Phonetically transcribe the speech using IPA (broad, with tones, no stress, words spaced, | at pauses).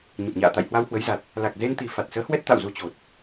ɲə˨˩p̚ɲa̰ː˧˨ t̪a̰˧˨jhwa˧whwə˨˦j za˨˩t̚ | la˨˩k̚ze˧nt̪i˨˩ fa˨˩t̚səː˨˦ hwɛ˦˥t̚ t̪a̰˧˨wzu˧t͡ɕo˨˩t̚